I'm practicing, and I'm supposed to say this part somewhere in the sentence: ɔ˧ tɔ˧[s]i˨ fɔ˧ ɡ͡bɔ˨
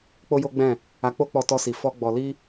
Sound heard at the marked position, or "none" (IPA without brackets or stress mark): s